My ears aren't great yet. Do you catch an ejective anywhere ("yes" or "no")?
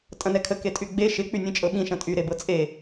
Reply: yes